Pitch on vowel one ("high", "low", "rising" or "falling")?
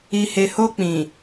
low